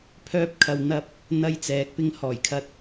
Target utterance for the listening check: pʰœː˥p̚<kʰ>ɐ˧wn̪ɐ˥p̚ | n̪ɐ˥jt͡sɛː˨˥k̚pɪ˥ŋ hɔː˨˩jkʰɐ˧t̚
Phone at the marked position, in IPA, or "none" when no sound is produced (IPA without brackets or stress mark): kʰ